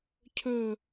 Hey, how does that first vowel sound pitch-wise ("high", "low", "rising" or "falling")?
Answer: falling